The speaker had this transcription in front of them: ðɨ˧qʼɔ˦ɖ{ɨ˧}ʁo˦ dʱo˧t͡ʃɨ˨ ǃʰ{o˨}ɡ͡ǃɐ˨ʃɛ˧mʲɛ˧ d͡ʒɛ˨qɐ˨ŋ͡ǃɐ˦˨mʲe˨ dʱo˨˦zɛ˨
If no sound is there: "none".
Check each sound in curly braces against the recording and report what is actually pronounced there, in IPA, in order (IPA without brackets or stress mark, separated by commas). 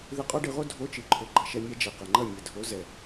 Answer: ɨ˧, o˨